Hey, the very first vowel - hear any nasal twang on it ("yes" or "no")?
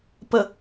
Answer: no